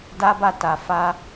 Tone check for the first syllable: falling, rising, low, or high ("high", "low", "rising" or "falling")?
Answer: high